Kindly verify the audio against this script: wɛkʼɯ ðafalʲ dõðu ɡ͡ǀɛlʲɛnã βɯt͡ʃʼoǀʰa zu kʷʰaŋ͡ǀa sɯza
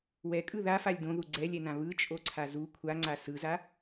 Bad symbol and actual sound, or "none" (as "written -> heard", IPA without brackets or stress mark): none